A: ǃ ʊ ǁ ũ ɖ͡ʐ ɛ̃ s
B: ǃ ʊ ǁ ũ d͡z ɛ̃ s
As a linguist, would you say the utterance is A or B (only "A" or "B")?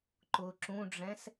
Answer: A